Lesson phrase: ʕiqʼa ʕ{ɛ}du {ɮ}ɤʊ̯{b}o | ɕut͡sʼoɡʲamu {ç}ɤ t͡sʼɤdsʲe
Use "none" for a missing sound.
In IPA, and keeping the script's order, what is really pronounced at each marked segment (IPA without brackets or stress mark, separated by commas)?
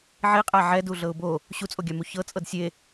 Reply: ɛ, ɮ, b, ç